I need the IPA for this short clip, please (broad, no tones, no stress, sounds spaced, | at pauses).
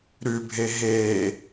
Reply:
ɾ ʉ bʱ e ɦ eː